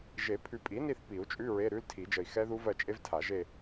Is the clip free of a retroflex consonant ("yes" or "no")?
yes